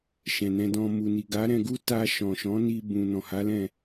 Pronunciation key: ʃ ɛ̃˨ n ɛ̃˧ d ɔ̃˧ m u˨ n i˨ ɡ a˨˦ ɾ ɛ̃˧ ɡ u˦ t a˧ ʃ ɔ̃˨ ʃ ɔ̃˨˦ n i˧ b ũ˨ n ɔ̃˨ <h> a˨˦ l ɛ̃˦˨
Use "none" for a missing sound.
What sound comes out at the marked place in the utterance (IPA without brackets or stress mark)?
h